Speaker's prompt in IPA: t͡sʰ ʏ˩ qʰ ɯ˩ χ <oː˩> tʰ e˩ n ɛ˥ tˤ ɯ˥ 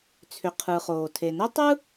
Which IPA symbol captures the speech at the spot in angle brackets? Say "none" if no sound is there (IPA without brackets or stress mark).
oː˩